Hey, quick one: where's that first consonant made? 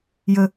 palate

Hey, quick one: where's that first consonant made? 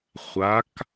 uvula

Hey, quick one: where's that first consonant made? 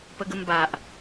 lips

